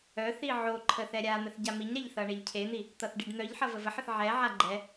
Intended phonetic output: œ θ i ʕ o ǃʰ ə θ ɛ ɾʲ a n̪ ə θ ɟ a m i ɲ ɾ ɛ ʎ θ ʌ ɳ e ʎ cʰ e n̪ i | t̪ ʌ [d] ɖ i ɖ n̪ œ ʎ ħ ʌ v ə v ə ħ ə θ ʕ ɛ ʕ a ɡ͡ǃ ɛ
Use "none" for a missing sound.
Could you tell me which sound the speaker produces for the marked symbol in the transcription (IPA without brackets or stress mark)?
θ